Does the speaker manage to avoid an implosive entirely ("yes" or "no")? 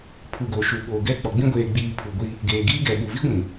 no